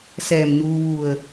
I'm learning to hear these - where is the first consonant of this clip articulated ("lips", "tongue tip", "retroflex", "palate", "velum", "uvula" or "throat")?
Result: tongue tip